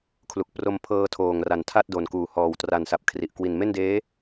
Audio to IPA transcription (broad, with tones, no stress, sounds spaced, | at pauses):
kʰ l u˨˩ k̚ p r o˧ m pʰ ɤː˧ tʰ oː˨˩ ŋ r a˨˩ n tʰ a˥˩ t̚ d o˨˩ n k uː˨˩ h ɔː˨˩ w t r a˨˩ n s a˨˩ p̚ kʰ r i˨˩ ʔ k w i˨˩ n m e˥˩ n d eː˦˥